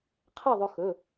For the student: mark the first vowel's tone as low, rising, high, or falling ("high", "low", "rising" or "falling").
falling